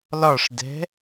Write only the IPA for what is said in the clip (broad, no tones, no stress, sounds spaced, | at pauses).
l ɒ ʂ d ɛ̤